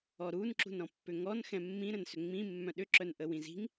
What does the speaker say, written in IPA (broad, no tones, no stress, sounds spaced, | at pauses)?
ɔ ɾ u n ǁ ṳ n ɾ ɔ̃ pː ʏ ŋ ɔ n x ɛ̃ mː ĩ ɾ ə̃ n s ʏ ŋ͡m ĩ mː œ̃ ɗ ʏ ǁ œ n ʔ ə w ĩ z i̤ ŋ